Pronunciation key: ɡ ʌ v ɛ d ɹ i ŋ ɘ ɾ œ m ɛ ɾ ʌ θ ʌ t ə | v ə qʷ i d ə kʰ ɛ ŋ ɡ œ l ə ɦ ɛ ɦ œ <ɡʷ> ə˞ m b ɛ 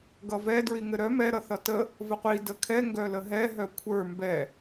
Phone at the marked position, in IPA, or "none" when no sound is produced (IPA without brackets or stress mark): kʷʰ